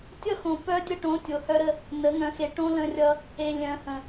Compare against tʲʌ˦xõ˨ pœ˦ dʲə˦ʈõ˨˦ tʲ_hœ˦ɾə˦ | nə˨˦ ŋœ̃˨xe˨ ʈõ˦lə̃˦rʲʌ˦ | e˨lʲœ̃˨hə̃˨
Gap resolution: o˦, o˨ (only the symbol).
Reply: o˨